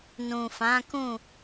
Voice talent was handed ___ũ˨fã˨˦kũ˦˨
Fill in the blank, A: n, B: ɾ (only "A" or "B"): A